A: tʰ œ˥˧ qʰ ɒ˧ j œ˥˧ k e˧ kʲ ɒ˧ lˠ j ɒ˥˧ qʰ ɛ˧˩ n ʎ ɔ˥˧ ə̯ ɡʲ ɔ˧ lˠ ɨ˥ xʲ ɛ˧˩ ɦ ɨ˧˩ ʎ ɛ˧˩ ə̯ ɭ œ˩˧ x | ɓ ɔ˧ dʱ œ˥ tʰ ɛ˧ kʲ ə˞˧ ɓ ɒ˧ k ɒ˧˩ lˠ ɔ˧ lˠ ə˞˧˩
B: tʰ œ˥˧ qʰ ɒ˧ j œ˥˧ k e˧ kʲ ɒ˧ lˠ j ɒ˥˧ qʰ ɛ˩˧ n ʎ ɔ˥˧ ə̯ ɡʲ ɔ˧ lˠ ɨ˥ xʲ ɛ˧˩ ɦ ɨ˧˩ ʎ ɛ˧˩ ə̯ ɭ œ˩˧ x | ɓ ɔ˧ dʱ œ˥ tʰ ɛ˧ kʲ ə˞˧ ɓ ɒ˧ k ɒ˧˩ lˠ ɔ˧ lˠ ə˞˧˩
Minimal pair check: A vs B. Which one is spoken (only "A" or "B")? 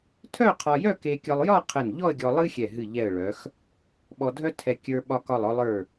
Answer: A